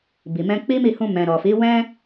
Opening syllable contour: low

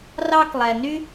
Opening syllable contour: high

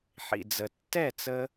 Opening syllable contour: low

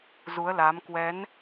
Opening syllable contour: rising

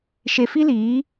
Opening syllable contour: low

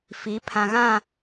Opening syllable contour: rising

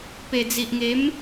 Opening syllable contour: low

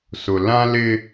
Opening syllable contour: low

